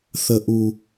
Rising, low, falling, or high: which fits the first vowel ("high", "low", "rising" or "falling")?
low